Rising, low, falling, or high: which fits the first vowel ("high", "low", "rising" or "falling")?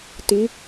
rising